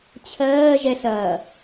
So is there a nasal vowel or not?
no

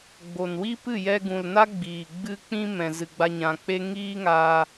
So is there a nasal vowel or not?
yes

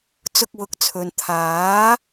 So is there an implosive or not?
no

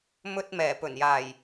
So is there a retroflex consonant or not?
no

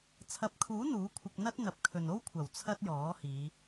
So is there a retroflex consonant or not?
no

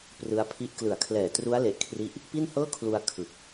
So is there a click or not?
no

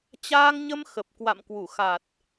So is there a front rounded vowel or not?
no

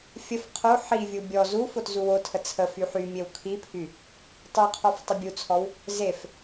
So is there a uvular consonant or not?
yes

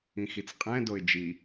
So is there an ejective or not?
yes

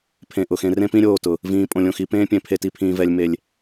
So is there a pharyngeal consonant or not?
no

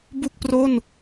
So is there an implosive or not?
no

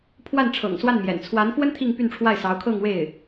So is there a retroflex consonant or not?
yes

